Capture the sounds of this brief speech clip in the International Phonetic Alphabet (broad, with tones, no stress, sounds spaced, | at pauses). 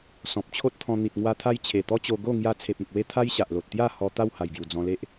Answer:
s ɔ̃˨ p̚ t͡ɕʰ o˦ t̚ t̪ʰ ɔ̃˧ n̪ i˨ t̚ ŋ w a˧ t̪ʰ a˧ j t͡ɕʰ e˨˩ t̪ ɔ˦ t͡ɕ o˧ ɡ o˥˧ ŋ j a˥˧ t͡sʰ e˨ p̚ ẽ˨ k̚ w e˧ t̪ʰ a˦ j ɕ a˨ ʔ l o˨ t̚ t̪ j a˥˧ h ɔ˧ t̪ a˥˧ w h a˨˩ j ɡ j u˨˩ d͡z ɔ̃˧ l e˦ ʔ